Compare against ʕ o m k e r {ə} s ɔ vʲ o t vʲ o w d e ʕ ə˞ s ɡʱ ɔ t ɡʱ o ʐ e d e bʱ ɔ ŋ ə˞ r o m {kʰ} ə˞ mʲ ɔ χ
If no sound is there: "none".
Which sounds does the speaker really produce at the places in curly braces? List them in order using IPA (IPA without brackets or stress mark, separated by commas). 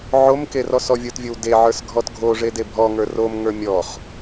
ɔ, ŋ